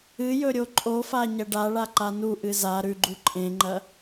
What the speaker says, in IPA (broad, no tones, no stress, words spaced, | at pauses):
ɨjɵ ɾʲoǃʼofa ɲɐɖaɭa ǃanuʔɨ za ɾʉɡ͡ǃu ǃʼẽŋ͡ǃɐ